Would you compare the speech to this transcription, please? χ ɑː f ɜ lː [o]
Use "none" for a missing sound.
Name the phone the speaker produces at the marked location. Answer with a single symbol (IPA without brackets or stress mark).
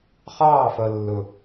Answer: ɵ